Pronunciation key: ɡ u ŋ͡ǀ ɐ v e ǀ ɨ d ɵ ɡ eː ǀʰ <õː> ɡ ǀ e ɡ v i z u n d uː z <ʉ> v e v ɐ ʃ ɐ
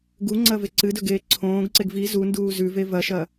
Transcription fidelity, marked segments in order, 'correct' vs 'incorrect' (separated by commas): correct, correct